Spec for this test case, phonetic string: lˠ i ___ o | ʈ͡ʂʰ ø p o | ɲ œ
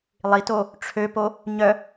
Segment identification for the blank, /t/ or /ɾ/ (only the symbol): t